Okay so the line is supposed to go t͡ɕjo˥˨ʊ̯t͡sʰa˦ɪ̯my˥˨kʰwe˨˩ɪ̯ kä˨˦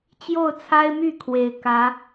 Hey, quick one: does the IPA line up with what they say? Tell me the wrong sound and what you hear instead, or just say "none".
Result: none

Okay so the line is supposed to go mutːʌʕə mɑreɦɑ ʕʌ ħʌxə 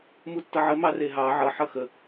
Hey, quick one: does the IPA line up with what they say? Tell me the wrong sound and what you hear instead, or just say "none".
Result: none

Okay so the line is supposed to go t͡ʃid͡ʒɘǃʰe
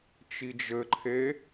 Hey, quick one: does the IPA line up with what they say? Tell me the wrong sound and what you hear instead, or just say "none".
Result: none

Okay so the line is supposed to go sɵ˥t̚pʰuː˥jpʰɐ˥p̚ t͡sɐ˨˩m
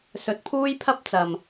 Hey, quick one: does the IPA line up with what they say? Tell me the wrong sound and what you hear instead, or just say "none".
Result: ɵ˥ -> ɵ˨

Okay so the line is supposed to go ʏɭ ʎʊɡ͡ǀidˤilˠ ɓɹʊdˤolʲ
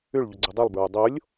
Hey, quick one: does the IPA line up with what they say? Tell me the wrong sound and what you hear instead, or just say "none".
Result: ɓ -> b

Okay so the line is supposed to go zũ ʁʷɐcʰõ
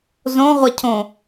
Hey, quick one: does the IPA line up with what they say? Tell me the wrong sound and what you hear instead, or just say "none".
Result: ũ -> õ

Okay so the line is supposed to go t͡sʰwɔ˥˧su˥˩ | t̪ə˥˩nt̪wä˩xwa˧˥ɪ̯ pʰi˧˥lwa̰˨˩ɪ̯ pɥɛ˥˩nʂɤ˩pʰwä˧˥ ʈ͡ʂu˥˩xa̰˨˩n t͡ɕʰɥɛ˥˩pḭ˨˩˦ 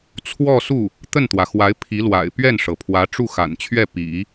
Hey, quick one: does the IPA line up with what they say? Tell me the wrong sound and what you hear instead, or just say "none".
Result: none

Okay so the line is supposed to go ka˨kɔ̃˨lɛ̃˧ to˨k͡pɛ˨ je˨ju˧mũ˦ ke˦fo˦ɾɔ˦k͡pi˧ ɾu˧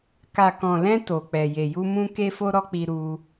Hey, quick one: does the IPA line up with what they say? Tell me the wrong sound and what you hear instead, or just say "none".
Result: none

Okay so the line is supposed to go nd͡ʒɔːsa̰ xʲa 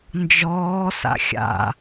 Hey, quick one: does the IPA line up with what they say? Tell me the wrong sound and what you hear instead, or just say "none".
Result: a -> a̰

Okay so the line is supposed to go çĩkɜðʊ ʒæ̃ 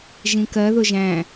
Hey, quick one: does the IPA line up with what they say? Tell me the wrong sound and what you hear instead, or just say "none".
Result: ç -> ʒ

